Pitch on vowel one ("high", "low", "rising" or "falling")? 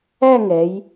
falling